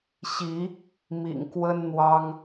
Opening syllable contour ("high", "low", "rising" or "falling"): rising